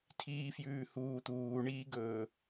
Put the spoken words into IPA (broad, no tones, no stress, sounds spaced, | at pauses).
tʰ iː f j ʉː h uː t̪ uː ɳ iː ɡ ɵː